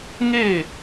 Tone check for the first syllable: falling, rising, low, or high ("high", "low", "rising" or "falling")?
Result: falling